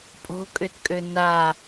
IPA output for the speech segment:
pʼ o̤ kʼ ʏ t kʼ ø n a

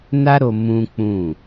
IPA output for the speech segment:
n a˦ ɾ o˧ m ũ˦ k͡p ũ˦˨

